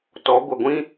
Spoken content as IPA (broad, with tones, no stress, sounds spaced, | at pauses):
t ɔ˨˦ ɡʷ ə˨ ɡʷ ĩ˦